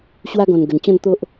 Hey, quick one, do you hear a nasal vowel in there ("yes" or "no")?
yes